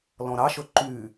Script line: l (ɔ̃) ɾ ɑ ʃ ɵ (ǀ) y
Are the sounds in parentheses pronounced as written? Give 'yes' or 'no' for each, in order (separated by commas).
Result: yes, no